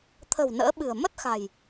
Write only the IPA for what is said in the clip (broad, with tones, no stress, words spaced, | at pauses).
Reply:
t̪ʰə̤˨˩w nə̰ː˧˥ɓɨ̤˨˩ə̯ mə˦˥t̚xa̤˨˩j